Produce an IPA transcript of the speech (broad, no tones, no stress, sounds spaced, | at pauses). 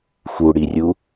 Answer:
x u ɽ i rʲ u